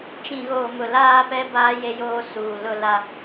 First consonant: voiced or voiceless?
voiceless